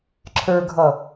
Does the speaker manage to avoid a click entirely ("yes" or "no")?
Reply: no